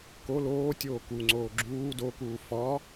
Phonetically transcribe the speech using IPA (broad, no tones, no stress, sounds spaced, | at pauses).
k o l oː tʲ oː k u ŋ͡ǀ oː ɡ͡ǁ uː d o k uː f ɒ